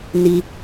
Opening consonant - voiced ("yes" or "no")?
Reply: yes